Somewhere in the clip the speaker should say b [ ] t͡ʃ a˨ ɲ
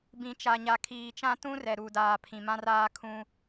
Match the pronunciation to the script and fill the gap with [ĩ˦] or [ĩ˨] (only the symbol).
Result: ĩ˨